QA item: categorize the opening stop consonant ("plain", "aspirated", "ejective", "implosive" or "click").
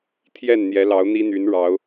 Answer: aspirated